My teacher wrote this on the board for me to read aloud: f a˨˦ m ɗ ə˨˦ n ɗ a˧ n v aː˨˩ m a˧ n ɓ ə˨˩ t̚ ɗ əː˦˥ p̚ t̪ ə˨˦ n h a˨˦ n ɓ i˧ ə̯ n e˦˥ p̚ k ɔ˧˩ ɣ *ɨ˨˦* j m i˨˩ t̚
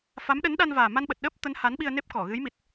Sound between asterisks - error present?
no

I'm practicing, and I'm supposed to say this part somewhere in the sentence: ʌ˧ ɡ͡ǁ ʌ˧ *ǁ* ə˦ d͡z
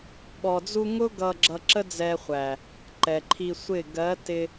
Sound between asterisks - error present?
no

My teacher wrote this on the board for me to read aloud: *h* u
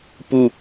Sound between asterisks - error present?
yes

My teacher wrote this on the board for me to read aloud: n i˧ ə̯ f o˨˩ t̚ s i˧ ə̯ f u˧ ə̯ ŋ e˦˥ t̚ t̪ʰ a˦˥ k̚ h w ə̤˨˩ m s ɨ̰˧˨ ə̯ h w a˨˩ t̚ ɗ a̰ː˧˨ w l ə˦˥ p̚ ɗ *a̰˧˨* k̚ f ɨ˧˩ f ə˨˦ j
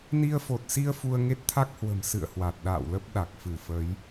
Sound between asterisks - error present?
yes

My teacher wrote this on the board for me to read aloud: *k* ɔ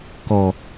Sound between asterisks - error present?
no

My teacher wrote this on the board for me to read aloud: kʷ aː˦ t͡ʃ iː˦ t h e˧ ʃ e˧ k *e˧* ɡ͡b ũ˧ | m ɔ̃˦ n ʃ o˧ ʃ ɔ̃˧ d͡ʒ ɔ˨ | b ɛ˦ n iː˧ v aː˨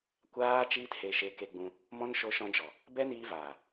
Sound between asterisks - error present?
no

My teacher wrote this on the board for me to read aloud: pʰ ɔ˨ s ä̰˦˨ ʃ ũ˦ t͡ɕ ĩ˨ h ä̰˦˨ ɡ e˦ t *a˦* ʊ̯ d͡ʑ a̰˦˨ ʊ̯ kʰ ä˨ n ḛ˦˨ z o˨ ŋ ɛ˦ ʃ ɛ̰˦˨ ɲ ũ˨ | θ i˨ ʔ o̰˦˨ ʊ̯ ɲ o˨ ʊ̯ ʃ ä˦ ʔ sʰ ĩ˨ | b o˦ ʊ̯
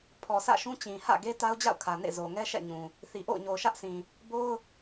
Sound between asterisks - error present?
no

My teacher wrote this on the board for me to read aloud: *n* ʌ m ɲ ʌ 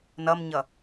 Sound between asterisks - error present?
no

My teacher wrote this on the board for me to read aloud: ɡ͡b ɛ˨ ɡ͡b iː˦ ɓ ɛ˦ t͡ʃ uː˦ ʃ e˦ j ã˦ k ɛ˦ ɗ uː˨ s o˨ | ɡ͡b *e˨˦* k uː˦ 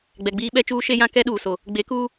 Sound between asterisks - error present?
no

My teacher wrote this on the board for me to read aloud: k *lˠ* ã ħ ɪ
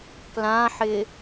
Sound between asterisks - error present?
yes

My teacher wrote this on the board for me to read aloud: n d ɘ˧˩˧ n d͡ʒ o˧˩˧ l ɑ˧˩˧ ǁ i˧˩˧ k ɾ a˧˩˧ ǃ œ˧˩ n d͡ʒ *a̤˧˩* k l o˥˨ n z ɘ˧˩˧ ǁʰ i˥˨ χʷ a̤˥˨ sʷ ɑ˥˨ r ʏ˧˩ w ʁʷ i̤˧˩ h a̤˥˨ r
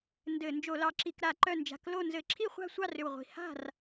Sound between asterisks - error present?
no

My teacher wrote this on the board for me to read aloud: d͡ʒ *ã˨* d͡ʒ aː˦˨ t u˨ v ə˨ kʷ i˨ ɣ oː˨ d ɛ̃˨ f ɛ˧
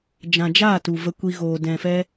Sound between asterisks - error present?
no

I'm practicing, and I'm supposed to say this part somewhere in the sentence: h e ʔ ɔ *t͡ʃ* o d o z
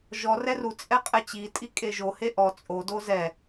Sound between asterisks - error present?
yes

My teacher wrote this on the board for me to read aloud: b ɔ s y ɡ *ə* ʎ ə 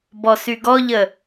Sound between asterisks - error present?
yes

